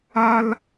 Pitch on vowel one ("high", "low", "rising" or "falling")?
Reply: high